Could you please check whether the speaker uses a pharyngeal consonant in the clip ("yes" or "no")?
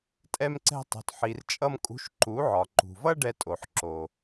yes